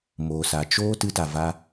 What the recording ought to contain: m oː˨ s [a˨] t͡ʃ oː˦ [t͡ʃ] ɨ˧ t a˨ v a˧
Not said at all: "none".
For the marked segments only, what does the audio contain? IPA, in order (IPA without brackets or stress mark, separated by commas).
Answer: a˨, t